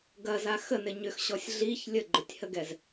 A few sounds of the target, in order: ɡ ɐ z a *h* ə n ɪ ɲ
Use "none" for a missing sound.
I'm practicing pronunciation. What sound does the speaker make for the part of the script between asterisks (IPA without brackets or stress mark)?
x